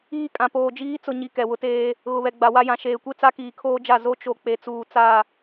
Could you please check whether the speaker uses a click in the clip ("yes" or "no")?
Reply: no